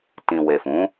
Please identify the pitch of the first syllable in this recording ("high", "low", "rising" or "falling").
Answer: low